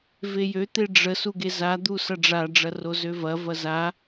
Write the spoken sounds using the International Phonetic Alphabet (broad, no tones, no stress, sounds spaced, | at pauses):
v e j ø t̪ e ɖ͡ʐ ə s u ɡ e z a d̪ u s ɐ ɖ͡ʐ a ɖ͡ʐ ɐ r o z ø v ɐ v ɐ z a